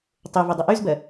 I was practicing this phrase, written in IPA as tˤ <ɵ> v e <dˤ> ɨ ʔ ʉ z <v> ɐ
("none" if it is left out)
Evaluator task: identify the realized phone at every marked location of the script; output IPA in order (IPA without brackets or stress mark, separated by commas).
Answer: ɵ, dˤ, b